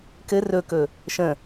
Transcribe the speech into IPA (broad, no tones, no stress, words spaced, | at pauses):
kɘ rɵkɵ | ʃə̃